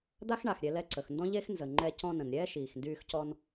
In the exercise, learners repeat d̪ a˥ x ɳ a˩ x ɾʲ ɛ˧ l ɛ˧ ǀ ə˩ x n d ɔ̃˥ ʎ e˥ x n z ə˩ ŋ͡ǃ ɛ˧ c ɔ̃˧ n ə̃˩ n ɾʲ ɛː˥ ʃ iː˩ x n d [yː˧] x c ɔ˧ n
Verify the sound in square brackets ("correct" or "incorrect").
correct